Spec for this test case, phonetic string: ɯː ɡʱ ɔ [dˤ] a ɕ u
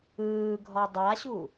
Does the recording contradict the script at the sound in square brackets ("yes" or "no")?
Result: no